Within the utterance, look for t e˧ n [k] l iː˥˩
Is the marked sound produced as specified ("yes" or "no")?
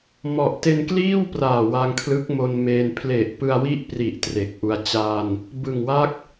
yes